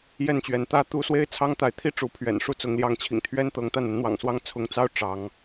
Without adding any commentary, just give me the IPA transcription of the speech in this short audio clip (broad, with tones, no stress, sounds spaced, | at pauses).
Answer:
j ɛ˥˩ n t͡ɕ ɥ ɛ˧˥ n t̪ ä˥ t̪ u˥ s w e˥ ɪ̯ t͡sʰ ɑ˥ ŋ t̪ a˧˥ ɪ̯ t̪ʰ i˥ ʈ͡ʂ u˧˥ pʰ ɥ ɛ̰˨˩ n ʂ u˥˩ t͡s ʊ˧˥ ŋ l j ɑ˥˩ ŋ t͡ɕʰ ḭ˨˩ ŋ t̪ʰ ɥ ɛ˥ n t̪ ɤ˧˥ ŋ t̪ a˥˩ n ə˧˥ n n̪ w ɑ̰˨˩ ŋ s w ɑ˥ ŋ t͡sʰ ʊ˧˥ ŋ t͡s ɑ˥ ʊ̯ ʈ͡ʂ ɑ˧˥ ŋ